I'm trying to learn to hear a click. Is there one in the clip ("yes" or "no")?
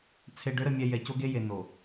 no